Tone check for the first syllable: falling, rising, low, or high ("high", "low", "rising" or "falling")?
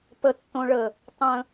low